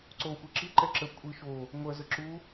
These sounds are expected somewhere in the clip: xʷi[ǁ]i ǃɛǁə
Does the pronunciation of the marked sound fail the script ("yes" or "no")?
no